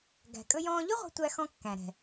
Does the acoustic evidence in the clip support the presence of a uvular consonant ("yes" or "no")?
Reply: yes